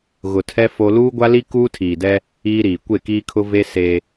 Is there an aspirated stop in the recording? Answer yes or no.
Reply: yes